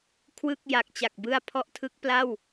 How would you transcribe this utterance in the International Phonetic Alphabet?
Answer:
kʰ w ɯ˥˩ k̚ j a˨˩ k̚ t͡ɕ a˨˩ k̚ b ɯ˧ a̯ pʰ ɔ˦˥ ʔ tʰ ɯ˦˥ k̚ p l a˥˩ w

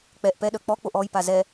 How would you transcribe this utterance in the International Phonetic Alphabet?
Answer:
k͡p ɛ ʔ p ɛ ɗ œ k͡p ɔ k͡p o ʔ ɔ j p a z ɛ

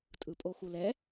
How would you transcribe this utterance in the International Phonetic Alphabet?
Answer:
tʼ ɯ pʼ o x u l ɛ

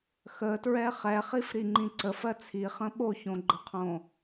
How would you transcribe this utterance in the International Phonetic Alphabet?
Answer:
x ə t ɹ ɛ χ ɛ χ i f ɾ i ŋ͡ǃ ĩ ǀ ə f ɜ t͡sʰ i χ ə̃ ɓ o ç õ ɡ͡ǃ ə qʰ õ

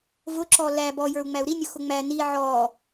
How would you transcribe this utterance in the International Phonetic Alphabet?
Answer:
v ʊ ǁ ɔ l æ b ɔ j ə˞ u̯ ŋ͡m æ u̯ ɾ i nʲ ʊ x ʊ ŋ͡m æ n i ʕ ɔ

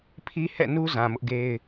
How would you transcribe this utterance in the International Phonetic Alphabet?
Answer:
pʰ i˦ h ɛ̰˦˨ n u˦ z ã˨ m ʊ˦ ʔ ɡ e˦ ɪ̯

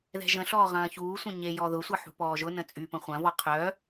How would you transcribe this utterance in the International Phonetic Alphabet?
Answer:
ð ɛ̤ ʒ ə̃ ɬ ɔː ʁ ɐ̃ː ç uː sʷ ə̃ ɲ e j ɔ ð ʊ sʷ ɐ ħ ṳ p ɔː ʒ ʊ n ə̃ t͡sʼ y p ə̃ χʷ ɐ̃ v ɔ qʰ œ

